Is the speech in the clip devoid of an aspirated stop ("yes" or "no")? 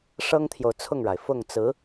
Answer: no